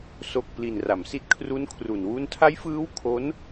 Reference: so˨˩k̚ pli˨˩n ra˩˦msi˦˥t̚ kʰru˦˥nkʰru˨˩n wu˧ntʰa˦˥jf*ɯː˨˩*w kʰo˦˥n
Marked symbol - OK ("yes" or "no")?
no